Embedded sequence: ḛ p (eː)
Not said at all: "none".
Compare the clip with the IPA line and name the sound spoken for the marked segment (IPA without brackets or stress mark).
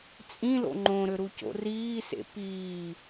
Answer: iː